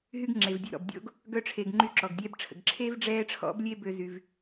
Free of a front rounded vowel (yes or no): no